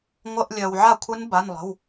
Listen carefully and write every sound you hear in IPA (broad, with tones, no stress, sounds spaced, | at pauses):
ŋʷ ə˧˥˧ ʔ lʲ œ˨ w ʕ a˥˩ kʷʰ ɨ˦˥ n b a˧˥˧ n lˠ ə̤˧˥˧ w